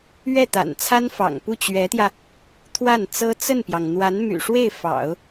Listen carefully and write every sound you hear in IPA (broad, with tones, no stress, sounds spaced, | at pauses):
ɥ ɛ˥˩ t̪ a̰˨˩ n t͡sʰ a˥ n f ɑ̰˨˩ ŋ p u˥˩ t͡ɕ ɥ ɛ˧˥ t̪ j ä˧ | t̪ʰ w a˥˩ n t͡s ɤ˥ t͡s ə˥˩ n p j ɑ˩ ŋ n̪ w a˧˥ n m y̰˨˩ ʂ w e˥˩ ɪ̯ f ɑ̰˨˩˦ ʊ̯